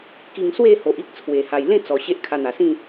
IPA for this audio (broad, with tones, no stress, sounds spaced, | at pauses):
k i˧ ŋ s w e˥˧ h o˨ ʔ i˦ k̚ t͡sʰ w e˨˩ h a˨˩ j l ẽ˥˧ t͡s ɔ˨˩ ɕ e˦ ʔ kʰ a˧ n̪ a˨˩ s ĩ˥˧